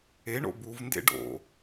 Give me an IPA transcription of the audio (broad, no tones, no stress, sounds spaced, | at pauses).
e ɳ o̰ b u v n d ḛ ɖ o̰